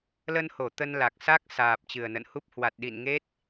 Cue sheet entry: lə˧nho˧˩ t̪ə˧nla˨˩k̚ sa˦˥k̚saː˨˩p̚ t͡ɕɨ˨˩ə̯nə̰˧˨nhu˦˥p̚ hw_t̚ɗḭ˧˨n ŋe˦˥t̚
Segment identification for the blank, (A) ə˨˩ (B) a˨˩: B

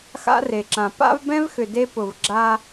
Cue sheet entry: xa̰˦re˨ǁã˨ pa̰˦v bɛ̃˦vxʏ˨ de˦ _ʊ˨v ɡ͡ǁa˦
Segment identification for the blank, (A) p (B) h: A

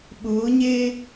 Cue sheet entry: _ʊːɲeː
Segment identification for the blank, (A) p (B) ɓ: B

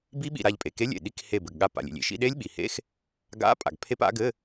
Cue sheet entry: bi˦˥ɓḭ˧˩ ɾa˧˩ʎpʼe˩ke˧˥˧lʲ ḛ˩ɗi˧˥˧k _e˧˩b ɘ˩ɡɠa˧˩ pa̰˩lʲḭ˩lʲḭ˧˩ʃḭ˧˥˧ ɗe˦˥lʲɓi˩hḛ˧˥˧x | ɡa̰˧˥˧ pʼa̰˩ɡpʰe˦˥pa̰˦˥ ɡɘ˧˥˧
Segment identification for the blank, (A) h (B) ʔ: A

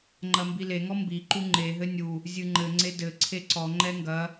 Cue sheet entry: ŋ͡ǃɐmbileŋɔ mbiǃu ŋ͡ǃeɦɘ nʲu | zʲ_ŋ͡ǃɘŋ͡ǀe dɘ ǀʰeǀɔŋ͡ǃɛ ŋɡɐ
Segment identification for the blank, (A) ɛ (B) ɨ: B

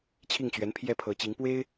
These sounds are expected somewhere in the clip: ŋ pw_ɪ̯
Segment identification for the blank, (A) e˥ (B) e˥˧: A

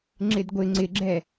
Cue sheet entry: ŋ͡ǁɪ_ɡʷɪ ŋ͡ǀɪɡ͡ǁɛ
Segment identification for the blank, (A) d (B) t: A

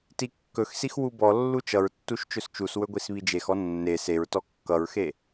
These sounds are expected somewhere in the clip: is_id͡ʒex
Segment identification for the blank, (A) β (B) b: A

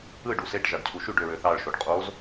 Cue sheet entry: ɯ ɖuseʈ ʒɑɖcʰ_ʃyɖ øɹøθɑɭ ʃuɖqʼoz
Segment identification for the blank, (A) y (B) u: B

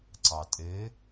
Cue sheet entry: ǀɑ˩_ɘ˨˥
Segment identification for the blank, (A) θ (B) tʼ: B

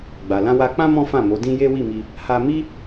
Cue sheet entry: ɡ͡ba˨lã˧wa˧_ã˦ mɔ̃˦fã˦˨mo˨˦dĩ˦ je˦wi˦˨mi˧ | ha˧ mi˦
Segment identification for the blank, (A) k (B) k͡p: B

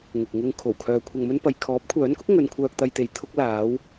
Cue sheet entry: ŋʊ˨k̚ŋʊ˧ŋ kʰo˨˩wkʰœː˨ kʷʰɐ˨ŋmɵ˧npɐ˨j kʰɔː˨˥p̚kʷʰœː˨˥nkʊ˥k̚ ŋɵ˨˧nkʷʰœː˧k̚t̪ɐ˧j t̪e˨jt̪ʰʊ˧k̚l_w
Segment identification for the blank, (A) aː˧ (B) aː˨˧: B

